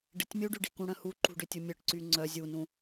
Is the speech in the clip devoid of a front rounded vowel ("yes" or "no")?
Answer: no